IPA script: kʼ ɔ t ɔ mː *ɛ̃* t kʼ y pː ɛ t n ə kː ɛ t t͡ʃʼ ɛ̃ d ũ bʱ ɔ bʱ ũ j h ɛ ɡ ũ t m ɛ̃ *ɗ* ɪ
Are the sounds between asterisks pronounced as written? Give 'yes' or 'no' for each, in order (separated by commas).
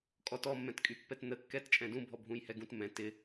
yes, no